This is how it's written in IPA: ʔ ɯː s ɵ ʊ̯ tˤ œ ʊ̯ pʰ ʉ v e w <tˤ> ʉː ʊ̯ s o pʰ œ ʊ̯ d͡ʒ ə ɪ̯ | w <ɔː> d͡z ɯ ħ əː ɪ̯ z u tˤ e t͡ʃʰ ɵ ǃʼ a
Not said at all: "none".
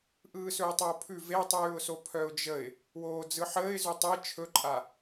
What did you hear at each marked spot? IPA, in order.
tˤ, oː

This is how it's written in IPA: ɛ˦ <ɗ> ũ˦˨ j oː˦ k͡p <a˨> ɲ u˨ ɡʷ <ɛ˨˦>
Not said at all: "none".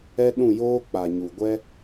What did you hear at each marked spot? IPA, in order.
ɗ, a˨, ɛ˦

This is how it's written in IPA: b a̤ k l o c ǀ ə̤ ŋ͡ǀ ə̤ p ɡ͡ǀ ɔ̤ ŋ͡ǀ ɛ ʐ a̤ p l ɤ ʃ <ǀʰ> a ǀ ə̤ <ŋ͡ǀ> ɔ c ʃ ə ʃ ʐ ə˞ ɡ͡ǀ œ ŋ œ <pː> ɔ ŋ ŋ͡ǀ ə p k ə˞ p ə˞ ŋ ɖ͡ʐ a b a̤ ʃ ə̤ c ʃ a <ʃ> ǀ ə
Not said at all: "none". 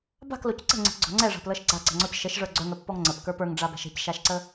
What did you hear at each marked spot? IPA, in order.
ɡ͡ǀ, ŋ͡ǀ, pː, ʃ

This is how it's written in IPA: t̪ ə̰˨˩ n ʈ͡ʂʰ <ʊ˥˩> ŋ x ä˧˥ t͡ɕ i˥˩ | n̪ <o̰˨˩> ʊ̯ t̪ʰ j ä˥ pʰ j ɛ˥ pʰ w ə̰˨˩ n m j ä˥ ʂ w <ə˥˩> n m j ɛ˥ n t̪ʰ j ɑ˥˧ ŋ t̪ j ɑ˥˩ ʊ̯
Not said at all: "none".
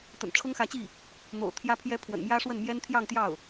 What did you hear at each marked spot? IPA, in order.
ʊ˥, o̰˨˩, ə˥˩

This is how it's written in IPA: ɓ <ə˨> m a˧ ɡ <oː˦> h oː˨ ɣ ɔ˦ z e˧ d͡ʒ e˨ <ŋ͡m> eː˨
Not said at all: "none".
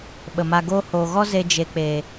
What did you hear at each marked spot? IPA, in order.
ə˨, oː˦, k͡p

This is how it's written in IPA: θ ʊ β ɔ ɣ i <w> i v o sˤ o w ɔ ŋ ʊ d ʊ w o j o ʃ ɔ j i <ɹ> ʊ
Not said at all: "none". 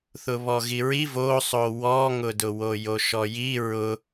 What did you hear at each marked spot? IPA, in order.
ɹ, ɹ

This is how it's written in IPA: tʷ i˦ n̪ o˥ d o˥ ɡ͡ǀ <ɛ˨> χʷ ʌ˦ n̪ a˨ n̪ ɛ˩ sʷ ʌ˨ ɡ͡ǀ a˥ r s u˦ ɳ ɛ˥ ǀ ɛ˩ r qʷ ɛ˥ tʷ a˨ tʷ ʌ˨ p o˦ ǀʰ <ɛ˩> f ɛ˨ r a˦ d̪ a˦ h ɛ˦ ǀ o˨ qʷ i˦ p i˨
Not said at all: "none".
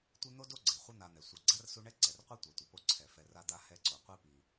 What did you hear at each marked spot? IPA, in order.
ɛ˩, ɛ˩

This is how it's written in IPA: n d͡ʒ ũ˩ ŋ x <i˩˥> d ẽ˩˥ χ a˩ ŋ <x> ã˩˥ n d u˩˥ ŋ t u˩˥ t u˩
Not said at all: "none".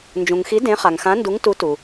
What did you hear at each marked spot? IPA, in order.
i˩˥, x

